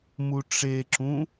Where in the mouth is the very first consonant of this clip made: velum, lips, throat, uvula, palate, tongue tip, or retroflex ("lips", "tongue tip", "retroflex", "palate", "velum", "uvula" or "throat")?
lips